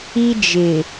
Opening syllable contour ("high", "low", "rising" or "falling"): high